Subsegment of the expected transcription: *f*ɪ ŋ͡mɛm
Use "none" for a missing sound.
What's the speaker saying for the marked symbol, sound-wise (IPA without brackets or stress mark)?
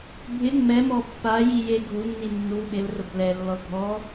bʱ